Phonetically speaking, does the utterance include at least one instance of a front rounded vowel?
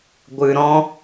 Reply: no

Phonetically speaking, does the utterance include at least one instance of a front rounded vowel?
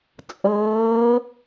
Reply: no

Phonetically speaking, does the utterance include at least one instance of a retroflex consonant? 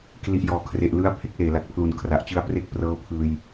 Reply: no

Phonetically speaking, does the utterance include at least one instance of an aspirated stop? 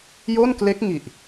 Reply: no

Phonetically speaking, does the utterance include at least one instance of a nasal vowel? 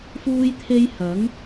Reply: no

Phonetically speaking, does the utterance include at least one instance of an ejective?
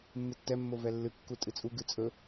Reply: yes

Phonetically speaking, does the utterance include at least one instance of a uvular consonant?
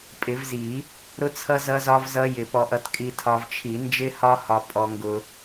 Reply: no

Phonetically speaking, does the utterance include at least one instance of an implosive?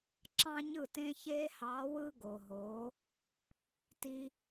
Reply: no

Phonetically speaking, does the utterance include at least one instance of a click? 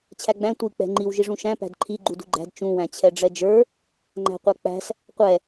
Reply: yes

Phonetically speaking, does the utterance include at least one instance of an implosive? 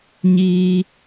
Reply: no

